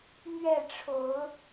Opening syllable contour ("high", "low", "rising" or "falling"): falling